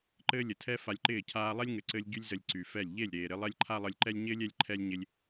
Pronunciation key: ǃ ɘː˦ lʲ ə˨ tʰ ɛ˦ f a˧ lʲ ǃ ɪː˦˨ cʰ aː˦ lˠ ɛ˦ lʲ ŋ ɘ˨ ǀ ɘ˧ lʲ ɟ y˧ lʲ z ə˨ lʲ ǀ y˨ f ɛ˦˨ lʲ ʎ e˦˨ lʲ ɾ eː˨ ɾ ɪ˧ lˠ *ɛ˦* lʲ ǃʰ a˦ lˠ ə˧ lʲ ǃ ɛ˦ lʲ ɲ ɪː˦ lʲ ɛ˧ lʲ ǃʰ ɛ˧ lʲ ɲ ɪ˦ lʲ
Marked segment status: correct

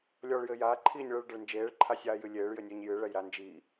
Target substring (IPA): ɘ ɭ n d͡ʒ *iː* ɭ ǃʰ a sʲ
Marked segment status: incorrect: eː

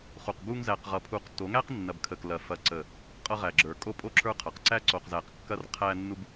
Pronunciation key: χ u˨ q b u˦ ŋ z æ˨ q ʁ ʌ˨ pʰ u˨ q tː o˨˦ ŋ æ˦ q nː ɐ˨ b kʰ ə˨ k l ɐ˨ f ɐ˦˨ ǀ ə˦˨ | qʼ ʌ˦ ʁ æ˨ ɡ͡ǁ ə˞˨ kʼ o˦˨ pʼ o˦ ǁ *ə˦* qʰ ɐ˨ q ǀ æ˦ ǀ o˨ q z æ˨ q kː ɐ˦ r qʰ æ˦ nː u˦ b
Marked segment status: incorrect: ə˞˦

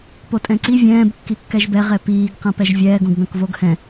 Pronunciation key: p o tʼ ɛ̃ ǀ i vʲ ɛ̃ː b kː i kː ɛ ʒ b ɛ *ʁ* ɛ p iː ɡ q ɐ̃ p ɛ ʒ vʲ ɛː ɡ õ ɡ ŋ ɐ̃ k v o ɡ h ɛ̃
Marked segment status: correct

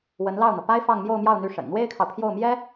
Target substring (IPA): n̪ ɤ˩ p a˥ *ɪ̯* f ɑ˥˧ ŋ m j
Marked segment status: correct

